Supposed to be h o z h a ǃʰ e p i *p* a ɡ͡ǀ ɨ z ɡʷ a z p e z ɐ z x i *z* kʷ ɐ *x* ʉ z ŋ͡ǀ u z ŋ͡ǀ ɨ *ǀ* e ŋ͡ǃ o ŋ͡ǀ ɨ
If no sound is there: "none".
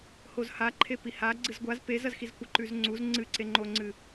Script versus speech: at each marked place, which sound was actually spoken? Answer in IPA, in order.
h, z, ǃ, ǀ

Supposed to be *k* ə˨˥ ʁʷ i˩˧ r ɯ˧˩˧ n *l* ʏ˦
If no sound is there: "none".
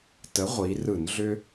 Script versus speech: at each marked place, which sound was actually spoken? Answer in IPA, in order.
t, ɮ

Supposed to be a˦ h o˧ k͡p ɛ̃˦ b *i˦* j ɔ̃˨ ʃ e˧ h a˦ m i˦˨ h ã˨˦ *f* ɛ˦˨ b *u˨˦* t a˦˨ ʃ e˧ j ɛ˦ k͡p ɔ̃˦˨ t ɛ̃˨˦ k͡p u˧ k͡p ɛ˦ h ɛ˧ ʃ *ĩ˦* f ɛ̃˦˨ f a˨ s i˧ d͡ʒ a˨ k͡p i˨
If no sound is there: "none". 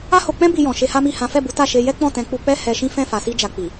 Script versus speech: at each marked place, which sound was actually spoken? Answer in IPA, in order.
i˧, f, u˨˦, ĩ˦

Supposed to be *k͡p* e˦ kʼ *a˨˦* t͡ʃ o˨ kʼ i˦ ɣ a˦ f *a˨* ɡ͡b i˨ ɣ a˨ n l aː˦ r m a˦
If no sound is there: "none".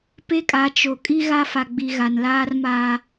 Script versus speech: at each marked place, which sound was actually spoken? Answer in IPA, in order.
p, a˨˦, a˨

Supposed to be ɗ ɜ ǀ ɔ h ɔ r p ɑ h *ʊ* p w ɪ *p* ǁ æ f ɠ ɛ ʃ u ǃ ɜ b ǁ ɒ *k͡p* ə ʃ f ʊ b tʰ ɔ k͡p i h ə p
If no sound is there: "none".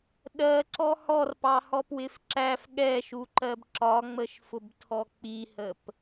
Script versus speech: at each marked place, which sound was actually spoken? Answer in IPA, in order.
ɔ, f, ŋ͡m

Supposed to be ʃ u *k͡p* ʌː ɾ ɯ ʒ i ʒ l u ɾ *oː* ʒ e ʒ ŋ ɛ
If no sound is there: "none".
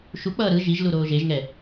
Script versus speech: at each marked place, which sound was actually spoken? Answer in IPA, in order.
k͡p, oː

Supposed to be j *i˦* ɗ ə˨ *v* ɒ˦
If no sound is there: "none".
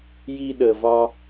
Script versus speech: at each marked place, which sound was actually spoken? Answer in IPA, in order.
i˦, v

